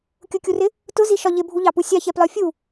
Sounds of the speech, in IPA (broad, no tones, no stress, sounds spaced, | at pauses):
kʲ ʊ kʲ u r ɪ | t ʊ z i ʃ ɒ ʎ ɪ bʱ u ʎ ɑ p u sʲ ɑ ç ɛ p l ɒ fʲ u